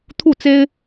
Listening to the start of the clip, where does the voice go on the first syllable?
falling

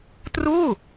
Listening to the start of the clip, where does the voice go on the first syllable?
falling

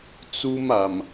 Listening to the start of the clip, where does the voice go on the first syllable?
high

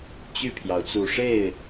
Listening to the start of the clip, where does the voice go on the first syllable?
falling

